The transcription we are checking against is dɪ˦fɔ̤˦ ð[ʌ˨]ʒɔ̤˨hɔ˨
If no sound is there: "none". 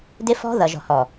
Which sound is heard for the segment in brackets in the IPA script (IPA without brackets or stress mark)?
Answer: ʌ˨